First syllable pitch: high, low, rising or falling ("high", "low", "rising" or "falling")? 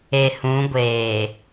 low